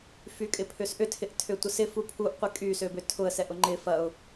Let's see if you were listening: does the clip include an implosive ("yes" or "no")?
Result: no